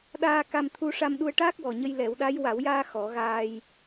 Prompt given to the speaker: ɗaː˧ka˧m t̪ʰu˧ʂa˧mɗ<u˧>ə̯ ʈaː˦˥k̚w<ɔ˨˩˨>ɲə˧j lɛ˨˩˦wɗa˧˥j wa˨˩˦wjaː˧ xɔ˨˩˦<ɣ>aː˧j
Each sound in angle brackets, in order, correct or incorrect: correct, incorrect, correct

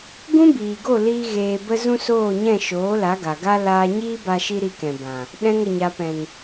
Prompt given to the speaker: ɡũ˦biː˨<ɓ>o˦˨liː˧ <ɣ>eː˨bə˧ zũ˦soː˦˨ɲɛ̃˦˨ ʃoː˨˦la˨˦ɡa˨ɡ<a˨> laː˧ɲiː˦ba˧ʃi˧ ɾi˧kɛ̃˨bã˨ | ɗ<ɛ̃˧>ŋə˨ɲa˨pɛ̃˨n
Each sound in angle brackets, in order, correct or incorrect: incorrect, correct, incorrect, correct

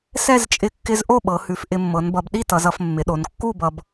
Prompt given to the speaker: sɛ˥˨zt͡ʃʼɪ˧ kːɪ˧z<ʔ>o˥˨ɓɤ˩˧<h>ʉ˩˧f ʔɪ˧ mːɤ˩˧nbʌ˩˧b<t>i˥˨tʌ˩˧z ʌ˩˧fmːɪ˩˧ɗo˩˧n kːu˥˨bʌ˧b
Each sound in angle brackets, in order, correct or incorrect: correct, correct, incorrect

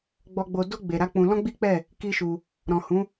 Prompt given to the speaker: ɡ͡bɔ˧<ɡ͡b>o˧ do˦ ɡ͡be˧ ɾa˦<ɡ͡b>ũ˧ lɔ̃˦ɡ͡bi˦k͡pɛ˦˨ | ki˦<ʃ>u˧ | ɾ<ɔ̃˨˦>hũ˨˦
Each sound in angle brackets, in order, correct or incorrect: correct, incorrect, correct, incorrect

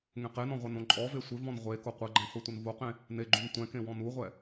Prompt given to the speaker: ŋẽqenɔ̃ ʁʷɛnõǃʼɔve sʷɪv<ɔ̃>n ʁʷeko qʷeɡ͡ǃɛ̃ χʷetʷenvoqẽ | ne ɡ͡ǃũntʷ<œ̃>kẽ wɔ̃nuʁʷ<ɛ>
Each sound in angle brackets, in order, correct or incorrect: correct, incorrect, correct

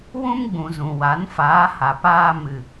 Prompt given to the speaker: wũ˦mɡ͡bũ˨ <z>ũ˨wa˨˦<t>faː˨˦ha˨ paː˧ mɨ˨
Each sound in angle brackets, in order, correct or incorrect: correct, incorrect

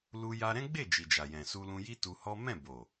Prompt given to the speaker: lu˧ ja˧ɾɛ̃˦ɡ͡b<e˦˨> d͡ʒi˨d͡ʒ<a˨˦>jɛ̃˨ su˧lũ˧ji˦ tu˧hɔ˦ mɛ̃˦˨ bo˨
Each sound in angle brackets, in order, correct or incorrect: correct, incorrect

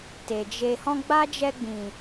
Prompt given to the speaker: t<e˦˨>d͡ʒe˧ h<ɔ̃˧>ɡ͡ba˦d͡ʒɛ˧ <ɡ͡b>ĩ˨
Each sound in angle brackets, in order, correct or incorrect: incorrect, correct, correct

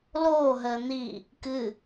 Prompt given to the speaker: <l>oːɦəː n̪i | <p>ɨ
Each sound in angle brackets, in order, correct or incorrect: correct, incorrect

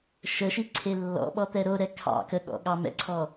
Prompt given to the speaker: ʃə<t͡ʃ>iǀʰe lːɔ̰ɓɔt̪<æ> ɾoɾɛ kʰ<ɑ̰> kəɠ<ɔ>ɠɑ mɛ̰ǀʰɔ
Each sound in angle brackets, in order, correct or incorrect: incorrect, incorrect, correct, incorrect

